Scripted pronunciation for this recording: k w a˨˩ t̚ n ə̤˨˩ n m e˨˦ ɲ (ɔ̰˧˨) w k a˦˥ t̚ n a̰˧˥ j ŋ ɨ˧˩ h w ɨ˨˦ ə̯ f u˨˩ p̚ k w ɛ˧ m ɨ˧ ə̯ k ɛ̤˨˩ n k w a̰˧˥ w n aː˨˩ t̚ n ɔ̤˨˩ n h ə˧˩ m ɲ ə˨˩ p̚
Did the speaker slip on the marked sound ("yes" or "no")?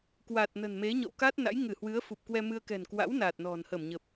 no